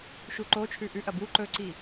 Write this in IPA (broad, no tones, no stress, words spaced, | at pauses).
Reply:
ʃuǃot͡ʃʰʉ ʔʉʔɐ bu ǃɵǀi